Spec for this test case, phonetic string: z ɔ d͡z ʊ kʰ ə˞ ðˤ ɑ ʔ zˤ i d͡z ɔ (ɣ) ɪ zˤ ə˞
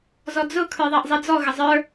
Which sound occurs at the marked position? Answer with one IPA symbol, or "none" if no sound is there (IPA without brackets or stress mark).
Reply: ɣ